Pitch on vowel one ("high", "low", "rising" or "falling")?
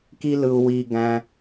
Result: high